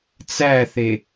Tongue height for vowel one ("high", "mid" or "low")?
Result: low